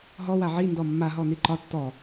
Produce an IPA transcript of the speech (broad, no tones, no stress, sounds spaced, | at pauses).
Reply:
ɦ ɔ w a ʕ i n d ɔ mː a ɦ ɔ n i ǃ ɒ tː ɔ